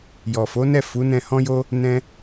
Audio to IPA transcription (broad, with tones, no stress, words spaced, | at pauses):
jɔ˨fo˨˦nɛ˦˨ fu˨˦nɛ̃˧hɔ̃˦jo˦ | nɛ̃˦